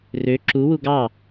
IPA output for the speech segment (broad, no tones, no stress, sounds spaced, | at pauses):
r ø ǁ u w u ɡ ɑ